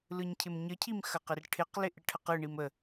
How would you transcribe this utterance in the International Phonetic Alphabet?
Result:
l ɯ ɲ cʰ ɪ m ɲ ə cʰ i m x ɐ q ɪ r ʈʰ ɪ q l ɪ ʔ ɪ ʈʰ ə q ɯ ɳ i m ə

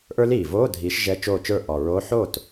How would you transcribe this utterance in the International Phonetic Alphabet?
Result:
ʔ ə˞˦˥ l iː˨˩ v oː˧˥˧ dʱ iː˨˦ ʃ ʒ ɛ˧˥˧ t͡ʃ oː˥˩ t͡ʃ ə˞˥˩ ʔ ɔ˨˩ ɹ oː˧˥˧ ħ o˥˩ t

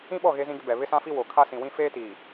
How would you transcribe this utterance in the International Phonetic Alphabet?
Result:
ĩ˦ ɓ ɔ˦˨ ɣ e˦ z ĩ˦ ɡ ɪ˦ b ɛ˨ β ɪ˦ s ã˦ f i˦ w o˨ kʰ a˦ s ĩ˨ w ĩ˦ f eː˦ t iː˨

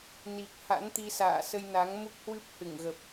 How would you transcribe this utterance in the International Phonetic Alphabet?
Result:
n i˨˩ k̚ h a̰˧˥ n t̪ i˧ s a̰ː˧˨ s ə˧ j n a˨˦ ŋ m u˦˥ k̚ h w ɨ˦˥ p̚ h ɨ˧˩ ŋ ɣ ə˨˩ p̚

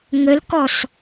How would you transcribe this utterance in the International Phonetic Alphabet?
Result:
ŋ ə l k ɔ s

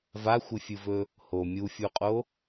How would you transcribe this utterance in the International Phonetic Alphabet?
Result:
v a xʷ ɨ fʲ ɨ v ɵ | h o mʲ u fʲ u qʼ o

